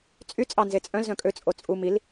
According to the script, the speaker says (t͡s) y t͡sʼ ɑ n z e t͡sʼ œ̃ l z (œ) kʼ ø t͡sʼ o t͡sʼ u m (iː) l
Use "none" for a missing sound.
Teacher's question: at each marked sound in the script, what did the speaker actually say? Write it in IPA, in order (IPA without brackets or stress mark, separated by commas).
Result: t͡sʼ, œ̃, i